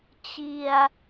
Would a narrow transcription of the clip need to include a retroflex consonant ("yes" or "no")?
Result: no